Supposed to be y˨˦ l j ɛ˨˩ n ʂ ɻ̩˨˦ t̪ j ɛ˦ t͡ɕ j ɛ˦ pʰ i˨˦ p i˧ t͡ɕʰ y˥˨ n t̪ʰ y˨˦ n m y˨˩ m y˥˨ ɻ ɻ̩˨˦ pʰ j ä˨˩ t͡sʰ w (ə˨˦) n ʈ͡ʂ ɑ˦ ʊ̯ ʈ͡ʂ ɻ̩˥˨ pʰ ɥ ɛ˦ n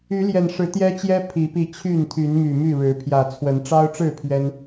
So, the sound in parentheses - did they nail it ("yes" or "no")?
yes